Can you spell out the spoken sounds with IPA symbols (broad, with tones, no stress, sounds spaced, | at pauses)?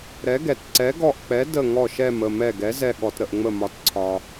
ɾ ɛ˩˥ ɡ ɛ˩ t ǀ ɛ˩˥ ɡ ɔ˧˩ ʔ k͡p ɛ˩˥ d ə˧˩ ŋ ɔ˧˩ ʃ ɛ˧˩ m ə˧˩ m ɛ˧˩ ɡ ɛ˩˥ z ɛ˧˩ ɠ ɔ˩ t ɾ ə˩ ʔ ŋ͡m ə˧˩ m ɒ˩˥ t ǀʰ ɒ˩